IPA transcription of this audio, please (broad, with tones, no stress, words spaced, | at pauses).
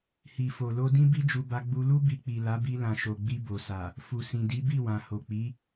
hi˨fo˨lo˧dĩ˦ bi˦d͡ʒu˧ba˧ ɡ͡bu˧lu˦ bi˧ k͡pi˨la˨˦bi˧ lã˨ʃo˨ɡ͡bi˧ bo˨sa˨ | fu˨sĩ˨di˨˦ bi˦˨wã˨ ho˨k͡pi˨˦